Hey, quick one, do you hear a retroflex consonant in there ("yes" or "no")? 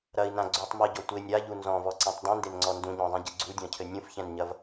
no